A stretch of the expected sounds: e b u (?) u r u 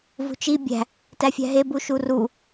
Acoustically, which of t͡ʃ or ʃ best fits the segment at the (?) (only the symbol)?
ʃ